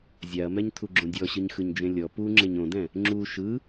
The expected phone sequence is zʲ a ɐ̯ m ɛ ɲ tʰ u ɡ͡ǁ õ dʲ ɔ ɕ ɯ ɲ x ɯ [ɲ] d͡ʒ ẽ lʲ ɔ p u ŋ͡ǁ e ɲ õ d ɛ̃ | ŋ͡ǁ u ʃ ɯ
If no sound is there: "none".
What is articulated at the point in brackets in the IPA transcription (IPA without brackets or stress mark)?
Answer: ɲ